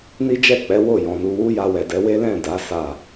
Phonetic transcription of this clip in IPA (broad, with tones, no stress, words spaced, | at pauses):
ni˦d͡ʒɛ˦˨k͡pɛ˨˦ wo˦˨jɔ̃˨nu˧ wu˦ja˧wɛ˨dɛ˨˦ we˦lɛ̃˦˨ da˨˦ sa˦˨